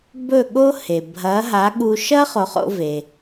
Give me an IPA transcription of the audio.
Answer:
b ɵ˥˩ ɠ o˥ h e˩ bʱ ɐː˩˥ ɦ a˩˥ ɠ uː˧ ʃ ɐː˥ χ o˩˥ χ o̰˧ v e˩

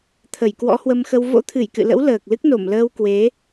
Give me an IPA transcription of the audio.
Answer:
t̪ʰ ə˧˩ j k w ɔ̰˧˥ h w ə˧ m x ə˧ w v o̰˧˥ t̪ʰ ɨ˧˩ j k ɨ̰˧˨ l ə̰˧˥ w l əː˨˩ k̚ l ɨ˦˥ k̚ n o˧˩ m l əː˧ w k w e˨˦

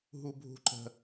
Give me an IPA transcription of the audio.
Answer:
ɦ u bʱ ṳ ǃ ə̤

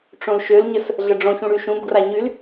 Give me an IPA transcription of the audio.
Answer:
ʈ͡ʂ õ l ʃ ø l ɲ ə s | ɮ ə ɖ͡ʐ õ ç ũ ɽ y ʃ ũ b ɡ r a ɲ y l

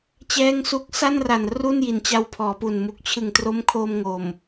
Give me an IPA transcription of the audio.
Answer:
t͡ɕ ɛː˥˩ ŋ s u˥˩ k̚ s a˥˩ n r a˨˩ n r u˥˩ n j i˨˩ n t͡ɕ a˧ w pʰ ɔː˩˦ p u˨˩ n m u˨˩ k̚ t͡ɕʰ ɯ˨˩ ŋ t r o˦˥ m kʰ o˧ m ŋ o˨˩ m

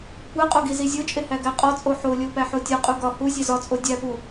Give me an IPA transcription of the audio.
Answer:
kʷ æ qʼ o ɡ i z i zʲ o t͡ʃʼ e h æ ɡ æ qʼ ɒ t͡sʼ o ħ o lʲ o p æ ħ o tʲ ɒ qʼ u ɡ ɒ h u zʲ e z ɒ t͡sʼ o dʲ æ p u

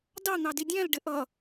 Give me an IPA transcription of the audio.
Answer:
d ɑ n̪ ɑ d i dʲ æ̃ l ɖ ɪ ʔ ʌ

